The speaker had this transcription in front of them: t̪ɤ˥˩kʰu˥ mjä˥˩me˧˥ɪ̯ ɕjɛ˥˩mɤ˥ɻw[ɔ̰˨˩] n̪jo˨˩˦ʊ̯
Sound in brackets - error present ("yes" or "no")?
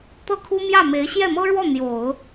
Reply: yes